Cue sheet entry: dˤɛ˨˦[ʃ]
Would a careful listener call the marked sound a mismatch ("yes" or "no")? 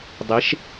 no